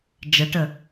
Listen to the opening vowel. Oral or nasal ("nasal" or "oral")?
oral